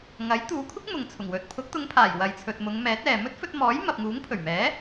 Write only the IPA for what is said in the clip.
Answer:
ŋɐ˨˥j t̪uː˨˧kʷʰɪ˥k̚ mʊ˨ŋt͡sʰʊ˨˩ŋ wɵ˨t̚ pʰʊ˨˥k̚t̪ʊ˨˧ŋpʰaː˨˩j wɐ˨jt͡sʰɵ˨t̚mʊ˨˧ŋmɛː˨˥t̚ ɛː˨ mɵ˥t̚fɵ˧t̚mɔː˨˥j mɐ˨p̚ŋuː˨˥ŋpʰɵ˨˩ɥmɛː˨˥

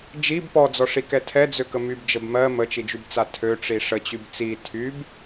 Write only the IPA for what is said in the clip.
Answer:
d͡ʒib pɔd͡zɔʂikɛ tʰɛd͡zøkə mybd͡ʒəb mɜ mət͡ʃid͡ʒybt͡sa tʰøʈ͡ʂi ʂət͡ɕyb t͡si tʰyb

